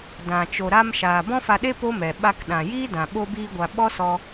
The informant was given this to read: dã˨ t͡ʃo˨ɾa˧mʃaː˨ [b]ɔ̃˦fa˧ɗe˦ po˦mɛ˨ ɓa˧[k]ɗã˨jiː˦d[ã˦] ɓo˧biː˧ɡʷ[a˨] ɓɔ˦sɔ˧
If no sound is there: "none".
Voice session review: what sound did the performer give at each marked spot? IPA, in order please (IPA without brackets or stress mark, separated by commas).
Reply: b, k, ã˨, a˨